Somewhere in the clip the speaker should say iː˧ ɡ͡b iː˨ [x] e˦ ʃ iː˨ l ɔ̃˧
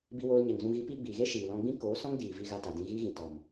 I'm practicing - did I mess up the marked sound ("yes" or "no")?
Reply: yes